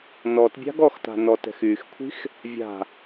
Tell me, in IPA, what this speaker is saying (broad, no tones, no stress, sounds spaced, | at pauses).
n ɔ t bʲ a̤ ɡ ɔ x t a̤ n ɔ t ɛ̤ x y x kʷʰ i̤ x | vʲ a̤